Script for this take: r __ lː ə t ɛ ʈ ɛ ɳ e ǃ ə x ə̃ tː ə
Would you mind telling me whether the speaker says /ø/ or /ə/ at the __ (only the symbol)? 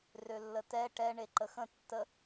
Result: ø